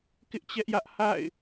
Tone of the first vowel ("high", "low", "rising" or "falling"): high